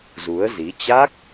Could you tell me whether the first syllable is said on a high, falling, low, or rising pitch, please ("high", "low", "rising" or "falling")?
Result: rising